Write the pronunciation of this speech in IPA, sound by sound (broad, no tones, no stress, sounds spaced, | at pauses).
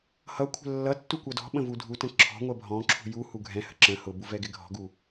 h ʌ kʷʰ ə̤ lː ʌ tː u kʷ ʌ d ɔ̤ ɓ ə̃ v u dʱ u t ə̃ ǁʰ ɔ̤ ŋʷ ɜ bʱ ɔ̃ ǁʰ ṳ j u h u ɡʱ ɛ̃ h ə̤ ǁ ə̃ h ʊ b u v ɛ ɡ ɪ ɡʱ ɔ̤ ɡ u